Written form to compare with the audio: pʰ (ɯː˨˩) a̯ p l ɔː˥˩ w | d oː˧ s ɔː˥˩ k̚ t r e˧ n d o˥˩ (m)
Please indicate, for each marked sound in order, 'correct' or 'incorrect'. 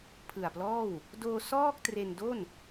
incorrect, incorrect

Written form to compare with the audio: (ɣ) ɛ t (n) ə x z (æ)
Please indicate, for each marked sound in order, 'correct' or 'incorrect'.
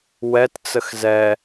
incorrect, incorrect, incorrect

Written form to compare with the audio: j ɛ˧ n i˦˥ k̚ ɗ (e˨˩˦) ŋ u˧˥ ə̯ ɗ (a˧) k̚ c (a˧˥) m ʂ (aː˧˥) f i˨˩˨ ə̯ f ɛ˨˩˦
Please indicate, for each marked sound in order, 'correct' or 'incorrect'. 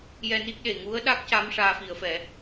incorrect, incorrect, correct, correct

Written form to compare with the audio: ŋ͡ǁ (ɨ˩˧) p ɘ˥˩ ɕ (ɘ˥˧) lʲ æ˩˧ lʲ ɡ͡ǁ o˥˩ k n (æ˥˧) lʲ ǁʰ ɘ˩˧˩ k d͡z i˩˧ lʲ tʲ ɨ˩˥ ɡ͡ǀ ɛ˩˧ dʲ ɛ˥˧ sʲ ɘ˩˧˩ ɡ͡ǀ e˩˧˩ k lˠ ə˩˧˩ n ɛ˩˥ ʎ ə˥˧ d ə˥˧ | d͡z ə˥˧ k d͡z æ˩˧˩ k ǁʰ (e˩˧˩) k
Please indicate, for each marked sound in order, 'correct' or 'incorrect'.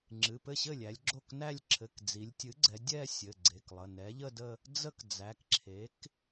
incorrect, incorrect, correct, incorrect

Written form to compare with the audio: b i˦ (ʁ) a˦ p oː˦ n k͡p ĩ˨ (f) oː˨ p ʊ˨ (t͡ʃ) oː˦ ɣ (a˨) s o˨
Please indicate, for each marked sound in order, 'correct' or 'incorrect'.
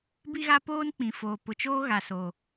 incorrect, correct, correct, correct

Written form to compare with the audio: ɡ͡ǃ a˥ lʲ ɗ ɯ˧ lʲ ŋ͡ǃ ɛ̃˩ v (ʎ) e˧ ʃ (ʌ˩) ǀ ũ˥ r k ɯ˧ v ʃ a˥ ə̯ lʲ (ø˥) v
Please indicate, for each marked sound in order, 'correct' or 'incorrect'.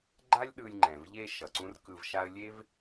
correct, correct, incorrect

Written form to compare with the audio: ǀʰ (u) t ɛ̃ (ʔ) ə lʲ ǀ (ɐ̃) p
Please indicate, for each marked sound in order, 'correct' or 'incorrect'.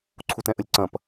correct, correct, correct

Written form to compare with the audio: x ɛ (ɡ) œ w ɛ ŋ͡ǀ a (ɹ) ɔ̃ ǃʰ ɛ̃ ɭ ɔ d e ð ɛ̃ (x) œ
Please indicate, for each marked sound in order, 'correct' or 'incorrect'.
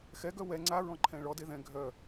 correct, correct, incorrect

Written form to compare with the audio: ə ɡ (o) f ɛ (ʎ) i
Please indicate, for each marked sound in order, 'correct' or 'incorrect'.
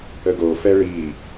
correct, incorrect

